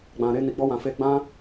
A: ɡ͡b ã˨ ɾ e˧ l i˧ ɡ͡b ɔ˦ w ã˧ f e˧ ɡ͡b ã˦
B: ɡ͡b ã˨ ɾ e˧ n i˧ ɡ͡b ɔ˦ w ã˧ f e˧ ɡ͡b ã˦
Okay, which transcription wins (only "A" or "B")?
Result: B